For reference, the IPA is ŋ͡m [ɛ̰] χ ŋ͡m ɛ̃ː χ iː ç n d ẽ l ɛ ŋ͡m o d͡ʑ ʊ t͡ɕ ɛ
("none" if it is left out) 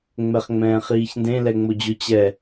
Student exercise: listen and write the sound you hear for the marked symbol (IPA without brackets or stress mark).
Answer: ɛ